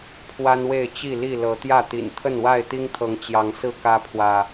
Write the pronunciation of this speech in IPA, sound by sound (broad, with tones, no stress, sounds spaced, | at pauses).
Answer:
pʰ w a˦ n w e˥˨ ɪ̯ t͡ɕ i˥˨ l i˥˨ l ɤ˨˦ t̪ j ä˥˨ t̪ ḭ˨˩ n t̪ʰ ə˥˨ n w a˥˨ ɪ̯ t̪ i˦ ŋ t̪ʰ ɤ˨˦ ŋ t͡ɕ j ɑ˨˦ ŋ s ɹ̩˥˨ k ä˦ pʰ w ä˨